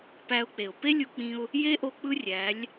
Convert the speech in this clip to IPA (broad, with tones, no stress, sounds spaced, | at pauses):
p æ˧ ʊ̯ k͡p e˨ ʊ̯ p e˦ lʲ u˧ k͡p ĩ˧ ʊ̯ | j e˦ ʔ o˧ k͡p ɯ˦ rʲ æ˨˦ lʲ